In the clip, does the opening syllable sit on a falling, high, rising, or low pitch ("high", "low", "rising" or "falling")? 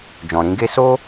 low